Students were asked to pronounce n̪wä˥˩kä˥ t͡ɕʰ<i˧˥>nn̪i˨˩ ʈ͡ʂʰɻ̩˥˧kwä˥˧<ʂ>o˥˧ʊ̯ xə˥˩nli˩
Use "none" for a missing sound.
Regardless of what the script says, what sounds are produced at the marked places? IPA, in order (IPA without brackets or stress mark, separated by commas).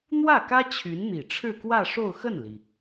y˧˥, ʂ